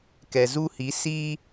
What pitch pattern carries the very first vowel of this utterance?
low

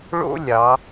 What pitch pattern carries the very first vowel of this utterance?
high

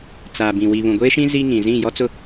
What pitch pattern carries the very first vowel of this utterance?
low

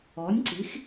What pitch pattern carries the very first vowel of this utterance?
rising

